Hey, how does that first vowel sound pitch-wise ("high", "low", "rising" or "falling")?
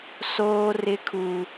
high